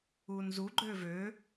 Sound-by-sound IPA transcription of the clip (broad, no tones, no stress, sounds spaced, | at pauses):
uː n z u ɡ͡ǃ øː v øː